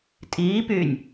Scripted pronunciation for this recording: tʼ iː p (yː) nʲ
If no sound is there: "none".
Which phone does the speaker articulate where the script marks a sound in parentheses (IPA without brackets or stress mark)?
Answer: yː